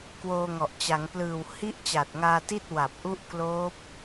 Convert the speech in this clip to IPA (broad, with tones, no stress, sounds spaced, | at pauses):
k w oː˧ ŋ ɔ˨˩ ʔ t͡ɕ a˩˦ ŋ p l ɯː˨˩ w h i˥˩ ʔ t͡ɕ a˨˩ t̚ ŋ aː˧ t i˥˩ t̚ w a˨˩ p̚ ʔ u˦˥ ʔ k l oː˦˥ p̚